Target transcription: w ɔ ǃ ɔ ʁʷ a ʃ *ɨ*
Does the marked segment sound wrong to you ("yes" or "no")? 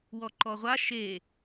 yes